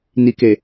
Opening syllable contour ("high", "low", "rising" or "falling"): low